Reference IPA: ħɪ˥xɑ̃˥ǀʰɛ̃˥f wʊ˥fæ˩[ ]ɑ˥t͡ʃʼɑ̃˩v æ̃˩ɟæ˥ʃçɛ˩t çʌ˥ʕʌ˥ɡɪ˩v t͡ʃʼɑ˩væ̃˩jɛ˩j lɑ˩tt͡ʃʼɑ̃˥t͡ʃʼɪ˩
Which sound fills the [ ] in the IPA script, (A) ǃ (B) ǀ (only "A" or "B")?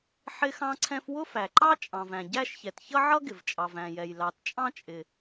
A